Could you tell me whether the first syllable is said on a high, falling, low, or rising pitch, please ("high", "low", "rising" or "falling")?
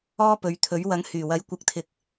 high